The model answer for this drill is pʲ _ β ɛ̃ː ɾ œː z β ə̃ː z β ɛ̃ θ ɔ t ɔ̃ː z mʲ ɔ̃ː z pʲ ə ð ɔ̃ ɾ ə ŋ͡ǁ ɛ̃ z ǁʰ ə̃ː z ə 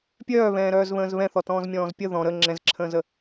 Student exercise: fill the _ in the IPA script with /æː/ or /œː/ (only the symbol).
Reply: œː